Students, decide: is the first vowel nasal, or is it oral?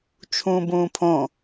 nasal